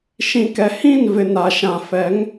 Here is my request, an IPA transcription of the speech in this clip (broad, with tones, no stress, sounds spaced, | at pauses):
ʃ ĩ˨ k ɛ˨ h ĩ˦˨ n v ɪ˨ n a˨ ʃ ã˨ f ɛ˨˦ ŋ